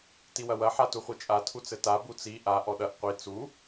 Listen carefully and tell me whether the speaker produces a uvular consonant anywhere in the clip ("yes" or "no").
yes